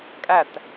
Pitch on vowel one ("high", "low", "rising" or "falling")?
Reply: falling